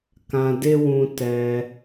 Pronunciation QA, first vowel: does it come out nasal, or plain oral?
nasal